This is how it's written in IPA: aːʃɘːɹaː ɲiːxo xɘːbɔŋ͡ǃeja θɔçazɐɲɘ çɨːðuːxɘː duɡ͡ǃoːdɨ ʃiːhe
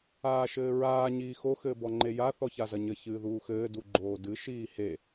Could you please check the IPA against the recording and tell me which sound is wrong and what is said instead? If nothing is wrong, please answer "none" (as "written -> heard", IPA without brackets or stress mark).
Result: none